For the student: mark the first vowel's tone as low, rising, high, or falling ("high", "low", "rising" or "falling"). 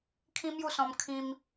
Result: high